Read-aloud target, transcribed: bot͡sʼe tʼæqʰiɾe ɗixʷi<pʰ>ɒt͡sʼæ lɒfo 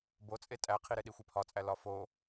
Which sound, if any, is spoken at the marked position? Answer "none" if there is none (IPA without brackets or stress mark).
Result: pʰ